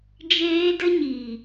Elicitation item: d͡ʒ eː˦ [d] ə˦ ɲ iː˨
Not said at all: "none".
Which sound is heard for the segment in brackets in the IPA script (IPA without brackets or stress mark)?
d